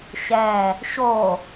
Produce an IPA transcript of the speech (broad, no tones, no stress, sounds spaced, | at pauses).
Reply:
ɕ ɛ | ɕ o